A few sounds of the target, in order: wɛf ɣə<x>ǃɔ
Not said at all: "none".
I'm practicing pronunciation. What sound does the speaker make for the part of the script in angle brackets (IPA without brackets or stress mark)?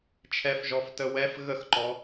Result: x